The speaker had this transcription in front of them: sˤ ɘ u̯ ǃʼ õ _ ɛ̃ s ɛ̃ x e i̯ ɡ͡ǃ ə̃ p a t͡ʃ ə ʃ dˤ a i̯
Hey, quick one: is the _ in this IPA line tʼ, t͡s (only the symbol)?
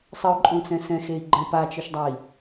t͡s